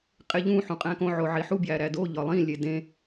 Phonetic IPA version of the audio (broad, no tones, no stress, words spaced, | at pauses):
qʼeʎũ ħũqʼæ̃kõ ʕoʕiħu bjæɾædo ʎɒlˠĩ lʲedẽ